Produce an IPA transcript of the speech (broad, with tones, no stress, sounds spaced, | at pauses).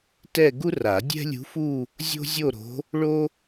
t ɛ˥˧ ɡ u˥ r a˨˩˦ dʲ ɛ̤˥ lʲ ṳ˧˥ f u˥˧ | zʲ o̤˥ zʲ o˥˧ ɾ o̤˧˥ | ɭ o˥